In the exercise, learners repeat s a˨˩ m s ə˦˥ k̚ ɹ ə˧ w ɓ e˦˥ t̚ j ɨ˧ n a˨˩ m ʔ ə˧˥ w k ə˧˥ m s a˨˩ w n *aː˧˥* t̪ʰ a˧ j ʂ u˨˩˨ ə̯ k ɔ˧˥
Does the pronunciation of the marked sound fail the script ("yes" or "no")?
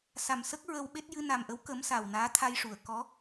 no